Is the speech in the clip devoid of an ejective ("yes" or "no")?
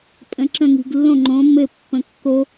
no